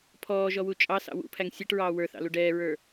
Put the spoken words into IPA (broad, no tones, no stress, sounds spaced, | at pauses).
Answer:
pʰ ɔː ʒ ɔ w u t͡ʃʼ ɑ s ɑ̰ w ṵ pʰ æ ŋ sʲ ɛ ʈ ɹ ɑː w ə˞ θ ɑ̰ l u ɖ ɛː ɹ ə˞